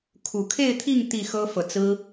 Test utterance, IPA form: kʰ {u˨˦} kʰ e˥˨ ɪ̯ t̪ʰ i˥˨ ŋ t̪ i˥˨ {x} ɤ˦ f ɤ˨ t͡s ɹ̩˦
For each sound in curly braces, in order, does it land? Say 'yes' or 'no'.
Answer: no, yes

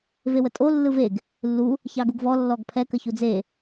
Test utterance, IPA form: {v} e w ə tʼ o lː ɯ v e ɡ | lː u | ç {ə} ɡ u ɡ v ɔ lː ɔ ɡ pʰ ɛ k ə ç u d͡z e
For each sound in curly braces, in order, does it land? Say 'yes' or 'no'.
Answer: yes, no

